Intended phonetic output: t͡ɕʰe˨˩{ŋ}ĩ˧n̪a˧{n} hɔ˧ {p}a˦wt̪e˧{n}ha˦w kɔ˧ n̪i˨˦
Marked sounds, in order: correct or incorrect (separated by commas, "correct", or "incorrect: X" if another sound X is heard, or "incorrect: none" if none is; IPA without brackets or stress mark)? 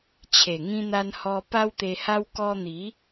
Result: correct, correct, correct, incorrect: none